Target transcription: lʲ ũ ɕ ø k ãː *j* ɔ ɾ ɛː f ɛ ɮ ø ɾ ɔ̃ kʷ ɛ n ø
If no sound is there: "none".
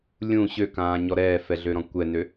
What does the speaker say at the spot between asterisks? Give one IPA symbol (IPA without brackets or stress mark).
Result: ɲ